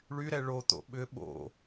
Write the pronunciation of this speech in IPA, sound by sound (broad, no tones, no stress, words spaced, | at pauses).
ɭyɾɛ ɭot̪o̰ ɓʏ ɓo̰